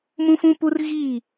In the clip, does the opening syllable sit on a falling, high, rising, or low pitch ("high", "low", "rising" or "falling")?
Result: high